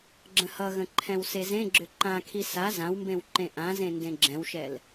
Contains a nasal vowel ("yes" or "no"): yes